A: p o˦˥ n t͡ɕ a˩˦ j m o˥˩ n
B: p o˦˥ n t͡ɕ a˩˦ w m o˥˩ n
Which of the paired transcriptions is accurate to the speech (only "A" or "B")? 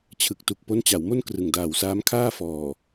B